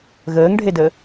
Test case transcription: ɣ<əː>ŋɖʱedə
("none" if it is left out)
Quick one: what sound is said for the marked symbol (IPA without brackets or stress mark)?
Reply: əː